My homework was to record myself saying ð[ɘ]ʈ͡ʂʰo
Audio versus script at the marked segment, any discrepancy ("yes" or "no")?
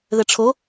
no